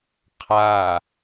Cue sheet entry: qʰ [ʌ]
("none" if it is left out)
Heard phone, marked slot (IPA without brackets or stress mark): a